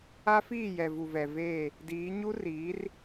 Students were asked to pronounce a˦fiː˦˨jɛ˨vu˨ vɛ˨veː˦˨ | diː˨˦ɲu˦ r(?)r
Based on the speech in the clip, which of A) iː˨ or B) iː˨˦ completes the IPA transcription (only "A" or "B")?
B